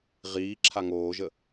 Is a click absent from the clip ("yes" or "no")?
no